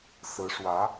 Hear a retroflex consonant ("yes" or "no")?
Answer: yes